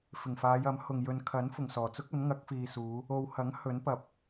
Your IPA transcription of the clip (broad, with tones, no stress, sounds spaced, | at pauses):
f ɪ˨˩ ŋ f aː˨˧ j ɐ˨˥ m h ʊ˨ ŋ j ɵ˨ n kʰ ɐ˨˥ n f ʊ˨˩ ŋ s ɔː˨˩ t͡s ʊ˥ k̚ ɐ˨˥ n ŋ ɐ˨˥ k̚ f iː˨ s uː˨˧ | o˨ w h ɐ˨˥ ŋ h ɵ˨˥ n p ɐ˨ p̚